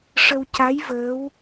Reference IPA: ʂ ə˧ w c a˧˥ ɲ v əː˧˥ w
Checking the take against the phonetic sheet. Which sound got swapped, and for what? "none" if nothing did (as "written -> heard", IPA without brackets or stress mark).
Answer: ɲ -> j